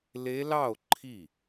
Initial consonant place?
alveolar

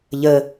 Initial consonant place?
palatal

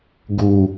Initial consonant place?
velar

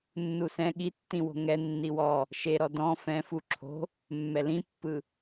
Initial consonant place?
alveolar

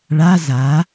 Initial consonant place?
retroflex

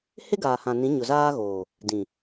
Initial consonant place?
glottal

